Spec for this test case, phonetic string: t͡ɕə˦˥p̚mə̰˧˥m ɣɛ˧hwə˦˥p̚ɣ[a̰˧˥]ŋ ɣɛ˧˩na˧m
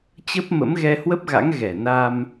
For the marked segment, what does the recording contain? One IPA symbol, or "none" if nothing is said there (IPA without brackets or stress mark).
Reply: a̰˧˥